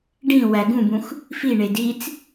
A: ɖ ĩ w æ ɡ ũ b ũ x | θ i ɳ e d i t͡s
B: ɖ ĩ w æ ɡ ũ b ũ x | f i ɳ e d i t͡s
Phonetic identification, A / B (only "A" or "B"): B